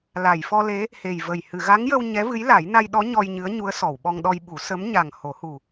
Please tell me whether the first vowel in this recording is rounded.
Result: no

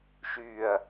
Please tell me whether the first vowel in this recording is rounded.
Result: yes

